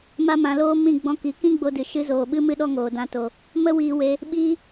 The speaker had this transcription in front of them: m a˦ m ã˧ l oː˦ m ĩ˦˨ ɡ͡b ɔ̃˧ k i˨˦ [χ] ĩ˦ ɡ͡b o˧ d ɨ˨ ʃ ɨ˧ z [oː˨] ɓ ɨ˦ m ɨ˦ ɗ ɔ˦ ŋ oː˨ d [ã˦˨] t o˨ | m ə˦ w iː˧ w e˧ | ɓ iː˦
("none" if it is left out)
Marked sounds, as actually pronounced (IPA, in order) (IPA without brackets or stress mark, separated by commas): k, oː˨, ã˧